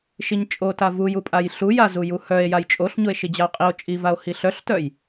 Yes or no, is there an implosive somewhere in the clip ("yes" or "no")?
no